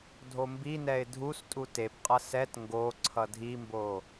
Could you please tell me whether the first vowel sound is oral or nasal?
oral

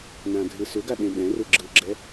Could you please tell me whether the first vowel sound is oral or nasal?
nasal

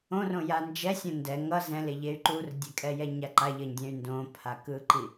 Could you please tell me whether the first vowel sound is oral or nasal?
nasal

